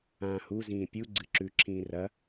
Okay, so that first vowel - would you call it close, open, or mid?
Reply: open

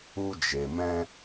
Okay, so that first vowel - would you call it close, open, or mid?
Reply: close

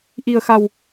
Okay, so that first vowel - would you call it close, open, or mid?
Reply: close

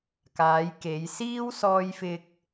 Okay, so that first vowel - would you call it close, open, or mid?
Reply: open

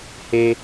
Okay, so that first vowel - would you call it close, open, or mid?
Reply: mid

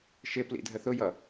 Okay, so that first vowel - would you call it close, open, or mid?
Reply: close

